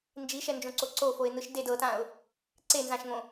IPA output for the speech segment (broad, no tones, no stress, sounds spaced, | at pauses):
n d͡ʒ i ʃ ɛ n d͡ʒ õ ǀ o ǀ o f o ɪ̯ n̪ ɯ ʃ d e d ɤ t ã ʊ̯ | ǀ e n z ã ʃ ŋ õ